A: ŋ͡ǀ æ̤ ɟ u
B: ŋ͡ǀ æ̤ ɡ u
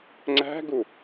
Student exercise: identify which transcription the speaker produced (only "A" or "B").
B